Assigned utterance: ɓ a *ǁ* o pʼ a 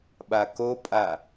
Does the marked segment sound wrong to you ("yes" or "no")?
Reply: yes